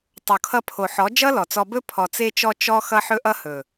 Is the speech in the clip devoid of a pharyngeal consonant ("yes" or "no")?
no